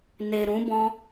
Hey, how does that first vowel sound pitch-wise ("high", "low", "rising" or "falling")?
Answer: low